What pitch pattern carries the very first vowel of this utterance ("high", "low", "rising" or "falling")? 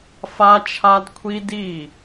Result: high